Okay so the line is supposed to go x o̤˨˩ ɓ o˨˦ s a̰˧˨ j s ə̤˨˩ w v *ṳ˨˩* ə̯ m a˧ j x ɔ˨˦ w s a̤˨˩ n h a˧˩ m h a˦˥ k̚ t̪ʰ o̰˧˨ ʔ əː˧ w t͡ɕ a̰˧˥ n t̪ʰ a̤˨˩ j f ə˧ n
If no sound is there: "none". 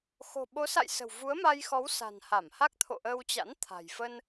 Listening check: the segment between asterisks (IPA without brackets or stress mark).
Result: u˨˦